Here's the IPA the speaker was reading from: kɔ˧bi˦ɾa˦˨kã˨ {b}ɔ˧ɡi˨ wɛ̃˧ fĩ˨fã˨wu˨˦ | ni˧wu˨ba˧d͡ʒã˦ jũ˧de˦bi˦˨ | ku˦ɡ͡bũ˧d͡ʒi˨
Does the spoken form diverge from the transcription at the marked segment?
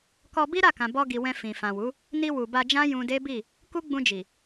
no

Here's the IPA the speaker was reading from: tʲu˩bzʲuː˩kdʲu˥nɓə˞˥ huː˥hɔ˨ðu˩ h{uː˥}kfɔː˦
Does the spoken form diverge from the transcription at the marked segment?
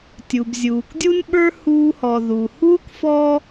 no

